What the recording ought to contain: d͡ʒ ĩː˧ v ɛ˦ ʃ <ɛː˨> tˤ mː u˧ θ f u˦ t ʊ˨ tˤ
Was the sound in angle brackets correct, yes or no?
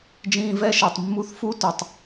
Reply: no